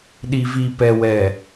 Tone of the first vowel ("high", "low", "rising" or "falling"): low